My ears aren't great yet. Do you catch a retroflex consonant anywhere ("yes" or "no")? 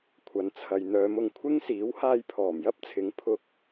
no